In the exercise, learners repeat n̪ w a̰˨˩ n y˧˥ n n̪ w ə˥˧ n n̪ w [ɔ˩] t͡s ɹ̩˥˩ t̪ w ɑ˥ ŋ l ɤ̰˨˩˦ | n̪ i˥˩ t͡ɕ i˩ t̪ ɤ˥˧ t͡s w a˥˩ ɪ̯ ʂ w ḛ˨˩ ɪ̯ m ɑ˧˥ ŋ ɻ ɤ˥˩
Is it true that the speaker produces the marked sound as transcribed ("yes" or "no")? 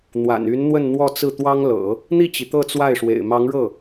no